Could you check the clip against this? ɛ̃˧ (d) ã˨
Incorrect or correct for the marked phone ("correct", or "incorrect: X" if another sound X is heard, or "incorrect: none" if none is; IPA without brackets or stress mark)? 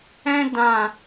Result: correct